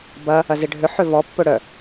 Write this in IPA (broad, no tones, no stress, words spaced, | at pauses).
bɐ | ɐzɪɖʱʏ ħøvɔ pːʊɽœ